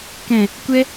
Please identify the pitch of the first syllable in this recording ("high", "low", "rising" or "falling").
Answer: low